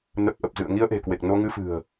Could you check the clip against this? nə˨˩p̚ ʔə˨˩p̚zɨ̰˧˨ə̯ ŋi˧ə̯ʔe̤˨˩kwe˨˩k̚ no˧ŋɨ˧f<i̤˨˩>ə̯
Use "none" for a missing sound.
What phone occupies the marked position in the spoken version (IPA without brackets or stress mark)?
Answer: ɨ̤˨˩